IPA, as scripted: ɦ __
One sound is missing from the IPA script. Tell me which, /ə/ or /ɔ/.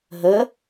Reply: ə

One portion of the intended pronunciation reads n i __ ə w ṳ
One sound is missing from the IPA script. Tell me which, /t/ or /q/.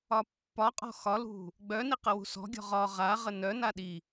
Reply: q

